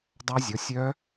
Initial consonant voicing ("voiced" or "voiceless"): voiced